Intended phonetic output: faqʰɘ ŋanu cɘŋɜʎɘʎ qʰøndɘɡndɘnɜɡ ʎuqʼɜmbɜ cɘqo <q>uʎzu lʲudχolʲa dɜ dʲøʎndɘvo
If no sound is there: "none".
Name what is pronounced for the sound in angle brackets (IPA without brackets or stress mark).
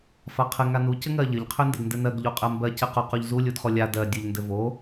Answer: q